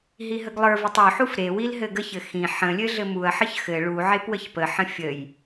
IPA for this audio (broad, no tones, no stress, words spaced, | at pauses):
ɦiɦəɡlˠə˞vutˤ ʉħuf ɾewil ɦɘɡəçɘ xĩ ħə̃lʲɘ ɮɘmuɐ̯ħəç xɘ ɭu ʕepwəçpəħə̃ fʲəj